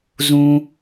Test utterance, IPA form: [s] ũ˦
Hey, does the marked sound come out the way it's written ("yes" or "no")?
no